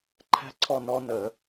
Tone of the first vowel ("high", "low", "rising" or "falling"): falling